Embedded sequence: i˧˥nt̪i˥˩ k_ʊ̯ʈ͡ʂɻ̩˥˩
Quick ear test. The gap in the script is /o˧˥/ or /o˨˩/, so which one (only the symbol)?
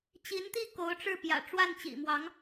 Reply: o˧˥